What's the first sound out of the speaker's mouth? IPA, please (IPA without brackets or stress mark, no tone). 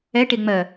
ɛ